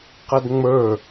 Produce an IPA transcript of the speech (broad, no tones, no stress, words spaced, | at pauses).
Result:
qɐdŋ͡mə˞